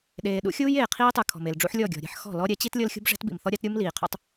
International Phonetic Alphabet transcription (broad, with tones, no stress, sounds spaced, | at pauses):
ɗ eː˨ ɗ ṵ˦ xʲ uː˦ j eː˨ qʰ iː˦ tˤ ɯ˨ kʰ ɔ̤˨ m e˨ l ɖ͡ʐ ṵ˦ ħ lʲ ɔ˦˨ ɡʲ ɔ̤˨ ɾʲ e̤˦ ħ x ɔ̤˦˨ l ɔ˦ ɾʲ ɛ˨˦ t͡ɕ i˦ t lʲ ɤ˦ l xʲ ṳ˦ b ʐ ɛ̤˦ t b ḭ˨ m θ ɔ˦ ɾʲ a˦ t ɾʲ u˦ m l iː˨ qʰ o̰˦ tˤ